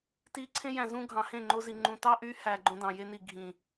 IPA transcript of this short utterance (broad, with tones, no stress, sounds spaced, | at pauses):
t i˧ ǀʰ ẽ˦ j æ̃˨ z ũ˦ ɡʱ ɑ̃˨ h ẽ˦˨ ŋ͡ǃ o˧ z i˨ ŋ͡ǃ ũ˨ t ɑ˦ ʔ y˧ h æ˧ ɡ͡ǃ õ˦ d ɑ̃˨ j e˦ n i˨ ɡʱ ĩ˨